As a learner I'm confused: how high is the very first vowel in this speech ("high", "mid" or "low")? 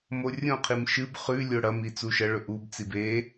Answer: mid